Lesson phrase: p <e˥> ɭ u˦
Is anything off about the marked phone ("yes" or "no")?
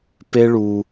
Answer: no